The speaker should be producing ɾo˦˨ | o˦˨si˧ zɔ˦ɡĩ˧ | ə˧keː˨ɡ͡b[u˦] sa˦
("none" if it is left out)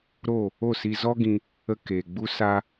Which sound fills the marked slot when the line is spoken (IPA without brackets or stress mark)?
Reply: u˦